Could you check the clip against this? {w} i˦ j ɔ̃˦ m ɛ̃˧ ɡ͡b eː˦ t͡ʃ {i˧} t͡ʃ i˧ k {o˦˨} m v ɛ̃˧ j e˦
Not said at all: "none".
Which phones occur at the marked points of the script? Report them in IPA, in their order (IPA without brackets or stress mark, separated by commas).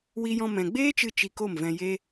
w, ɨ˧, o˦˨